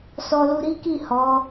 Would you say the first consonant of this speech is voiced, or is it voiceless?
voiceless